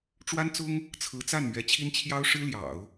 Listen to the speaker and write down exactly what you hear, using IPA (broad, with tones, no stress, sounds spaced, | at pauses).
ʈ͡ʂ w a˥ n t͡s ʊ˥ ŋ | t͡sʰ ɹ̩˧˥ t͡s a˥˩ n m ɥ ɛ˧˥ t͡ɕʰ i˥ n t͡ɕʰ j ɑ˥ ʊ̯ ʂ ɻ̩˥ l j ɑ̰˨˩˦ ʊ̯